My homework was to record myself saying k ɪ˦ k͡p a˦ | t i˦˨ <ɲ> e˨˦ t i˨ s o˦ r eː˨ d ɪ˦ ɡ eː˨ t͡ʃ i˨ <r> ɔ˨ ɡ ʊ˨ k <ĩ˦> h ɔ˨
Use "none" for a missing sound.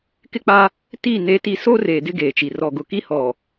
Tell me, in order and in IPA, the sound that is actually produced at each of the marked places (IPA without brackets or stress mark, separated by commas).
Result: n, r, i˦